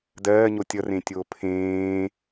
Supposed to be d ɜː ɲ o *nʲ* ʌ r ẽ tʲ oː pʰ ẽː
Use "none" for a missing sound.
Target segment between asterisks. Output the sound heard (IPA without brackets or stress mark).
tʲ